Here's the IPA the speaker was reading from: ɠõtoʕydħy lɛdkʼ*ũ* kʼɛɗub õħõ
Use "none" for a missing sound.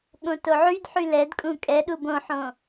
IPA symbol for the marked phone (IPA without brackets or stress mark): ũ